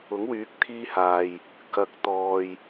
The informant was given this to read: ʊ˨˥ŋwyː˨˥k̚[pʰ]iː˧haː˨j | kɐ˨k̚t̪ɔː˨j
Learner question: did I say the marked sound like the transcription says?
no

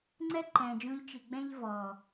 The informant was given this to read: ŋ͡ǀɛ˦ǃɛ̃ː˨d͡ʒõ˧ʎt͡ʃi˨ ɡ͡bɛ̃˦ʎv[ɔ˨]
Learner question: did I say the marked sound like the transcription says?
no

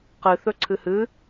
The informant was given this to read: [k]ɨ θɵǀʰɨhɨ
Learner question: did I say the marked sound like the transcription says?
no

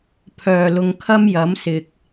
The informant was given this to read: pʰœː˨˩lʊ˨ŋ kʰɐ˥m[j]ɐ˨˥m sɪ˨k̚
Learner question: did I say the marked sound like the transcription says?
yes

